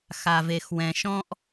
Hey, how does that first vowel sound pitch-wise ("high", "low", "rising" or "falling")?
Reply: low